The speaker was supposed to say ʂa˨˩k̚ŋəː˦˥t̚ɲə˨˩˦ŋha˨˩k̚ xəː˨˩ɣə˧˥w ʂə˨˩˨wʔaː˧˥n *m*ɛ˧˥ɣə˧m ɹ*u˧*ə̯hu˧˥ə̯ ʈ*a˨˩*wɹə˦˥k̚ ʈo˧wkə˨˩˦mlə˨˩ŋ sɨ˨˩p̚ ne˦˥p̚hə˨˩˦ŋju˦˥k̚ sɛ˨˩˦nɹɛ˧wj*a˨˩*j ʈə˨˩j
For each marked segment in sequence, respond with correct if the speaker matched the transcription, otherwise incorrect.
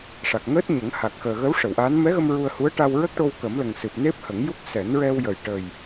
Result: correct, correct, incorrect, incorrect

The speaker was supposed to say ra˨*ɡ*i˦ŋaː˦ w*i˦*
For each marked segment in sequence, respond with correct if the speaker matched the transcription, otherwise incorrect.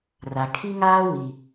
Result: incorrect, incorrect

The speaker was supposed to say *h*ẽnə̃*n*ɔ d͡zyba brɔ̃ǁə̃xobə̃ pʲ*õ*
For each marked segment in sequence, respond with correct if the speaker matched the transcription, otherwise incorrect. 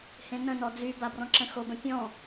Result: correct, correct, incorrect

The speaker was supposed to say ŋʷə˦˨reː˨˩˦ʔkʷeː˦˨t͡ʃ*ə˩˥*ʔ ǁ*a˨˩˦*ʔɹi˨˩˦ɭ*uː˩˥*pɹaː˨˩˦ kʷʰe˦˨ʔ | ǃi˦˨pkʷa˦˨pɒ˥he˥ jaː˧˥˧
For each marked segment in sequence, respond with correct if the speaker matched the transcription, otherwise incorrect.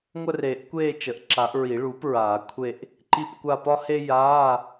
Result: correct, correct, correct

